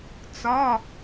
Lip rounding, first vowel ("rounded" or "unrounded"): rounded